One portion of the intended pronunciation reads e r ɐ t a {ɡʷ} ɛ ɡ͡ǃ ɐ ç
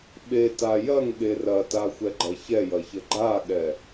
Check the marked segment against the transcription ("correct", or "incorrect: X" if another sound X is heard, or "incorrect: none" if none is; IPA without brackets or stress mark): incorrect: xʷ